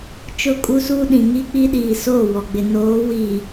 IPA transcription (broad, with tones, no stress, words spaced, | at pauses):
t͡ʃʊ˦˨kʼu˦suː˦ɗĩ˨ ŋi˦k͡pi˦ɗiː˨ soː˦˨wɔ˨ɡ͡bɪ˨ noː˨˦wi˨